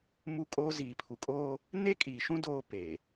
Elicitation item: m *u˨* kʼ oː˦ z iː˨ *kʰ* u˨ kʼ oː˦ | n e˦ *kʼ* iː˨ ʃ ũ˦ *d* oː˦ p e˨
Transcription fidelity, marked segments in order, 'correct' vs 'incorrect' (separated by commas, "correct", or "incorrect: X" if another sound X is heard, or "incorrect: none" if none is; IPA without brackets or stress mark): incorrect: u˦, incorrect: pʰ, correct, correct